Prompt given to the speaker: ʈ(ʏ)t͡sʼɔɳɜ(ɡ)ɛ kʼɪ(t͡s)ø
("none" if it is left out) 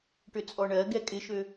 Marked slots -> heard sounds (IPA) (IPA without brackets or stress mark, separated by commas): ʏ, ɡ, ʃ